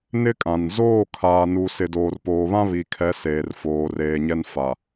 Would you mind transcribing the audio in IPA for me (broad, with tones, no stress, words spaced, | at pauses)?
nɪ˦kʼã˨n zoː˦˨kʰaː˨ nu˨ sɪ˨doː˨rpoː˨βã˦ βi˨kʰɛ˨˦ seː˨rfoː˨reː˨ɲɛ˦n fa˨